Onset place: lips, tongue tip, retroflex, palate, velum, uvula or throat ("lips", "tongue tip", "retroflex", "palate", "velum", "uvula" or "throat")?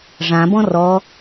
retroflex